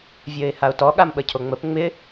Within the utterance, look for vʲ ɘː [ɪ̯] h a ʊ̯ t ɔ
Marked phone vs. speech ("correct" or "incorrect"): correct